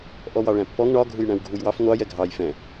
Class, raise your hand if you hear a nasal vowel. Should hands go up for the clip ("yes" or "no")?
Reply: yes